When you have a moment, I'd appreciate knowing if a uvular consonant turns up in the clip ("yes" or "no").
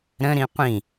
yes